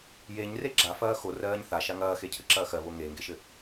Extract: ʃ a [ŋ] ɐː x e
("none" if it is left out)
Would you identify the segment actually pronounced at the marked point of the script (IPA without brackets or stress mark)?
ŋ